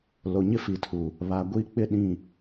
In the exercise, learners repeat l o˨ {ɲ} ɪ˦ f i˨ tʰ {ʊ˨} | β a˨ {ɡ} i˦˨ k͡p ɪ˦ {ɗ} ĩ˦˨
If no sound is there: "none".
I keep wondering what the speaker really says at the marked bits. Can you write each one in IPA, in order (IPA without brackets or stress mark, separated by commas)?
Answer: ɲ, u˨, ɡʷ, ɗ